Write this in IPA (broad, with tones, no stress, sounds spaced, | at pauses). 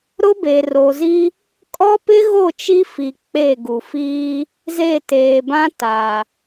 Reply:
ɾ ʊ˦ b e˨ r o˨ z i˦ | kʼ ɔ˦ p ɪ˦ ɣ o˦˨ t͡ʃ i˦ f i˨ k͡p e˦˨ ɡ u˨ f iː˦ | z e˦˨ t eː˨ b ã˦ t a˨